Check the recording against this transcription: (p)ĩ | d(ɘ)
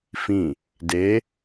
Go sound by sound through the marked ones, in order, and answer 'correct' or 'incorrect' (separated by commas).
incorrect, incorrect